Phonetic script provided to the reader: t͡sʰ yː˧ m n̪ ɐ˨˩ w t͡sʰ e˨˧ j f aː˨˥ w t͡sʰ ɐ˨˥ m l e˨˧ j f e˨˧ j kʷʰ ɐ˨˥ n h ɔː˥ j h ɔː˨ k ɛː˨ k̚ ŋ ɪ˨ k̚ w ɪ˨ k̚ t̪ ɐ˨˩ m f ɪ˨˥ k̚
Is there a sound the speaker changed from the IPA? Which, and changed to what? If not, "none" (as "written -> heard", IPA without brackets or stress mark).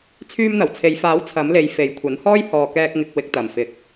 ɛː˨ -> ɛː˧